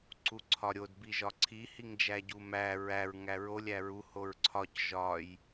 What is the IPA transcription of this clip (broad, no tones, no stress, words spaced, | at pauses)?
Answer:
ǀuǀʰɒɾʲod biʒɒǀʰi hiŋd͡ʒæɟumæ ɹæɹ ŋæɹolʲ æɹu hoɹǀʰɒc ʒɒj